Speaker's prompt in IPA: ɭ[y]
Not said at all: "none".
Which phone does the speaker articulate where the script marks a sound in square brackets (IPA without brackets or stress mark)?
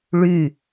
y